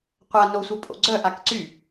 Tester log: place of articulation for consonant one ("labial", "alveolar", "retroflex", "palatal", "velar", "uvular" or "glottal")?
uvular